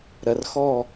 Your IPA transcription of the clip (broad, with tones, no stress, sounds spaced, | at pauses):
ɾ ɐ˨ r x ɔ˦˨